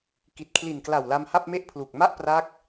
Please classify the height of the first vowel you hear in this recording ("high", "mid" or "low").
high